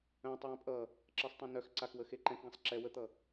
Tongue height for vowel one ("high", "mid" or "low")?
mid